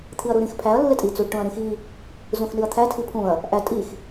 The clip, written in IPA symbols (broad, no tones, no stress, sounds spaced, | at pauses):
t̪ʰ i ɐ̯ ɾ u ɾ ĩ x pʰ æ ɐ̯ lː e tʼ i t͡s u ɖ ʈ ũ ɐ̯ ɾ ĩ x i | z ũ x n i ɐ̯ t̪ʰ æ tʰ i pʰ ũ ɐ̯ | ʔ æ tʼ i x